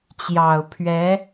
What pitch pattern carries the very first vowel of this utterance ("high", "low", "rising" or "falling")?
low